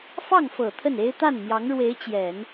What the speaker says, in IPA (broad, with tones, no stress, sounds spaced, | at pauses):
f ɑ˥˩ ŋ f ɤ˨˩ t̪ʰ ə˥˩ n e˥ ɪ̯ t̪ a˥˩ n m j ɑ˧˥ ŋ ɻ w e˧˥ ɪ̯ t͡ɕ j ɛ˨˩˦ n